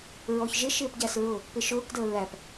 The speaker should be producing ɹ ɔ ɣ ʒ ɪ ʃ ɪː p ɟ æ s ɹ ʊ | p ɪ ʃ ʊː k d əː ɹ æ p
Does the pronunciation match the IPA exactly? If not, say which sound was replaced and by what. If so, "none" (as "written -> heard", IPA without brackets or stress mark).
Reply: ɣ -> ç